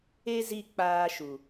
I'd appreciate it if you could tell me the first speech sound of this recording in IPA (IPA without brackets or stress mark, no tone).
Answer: e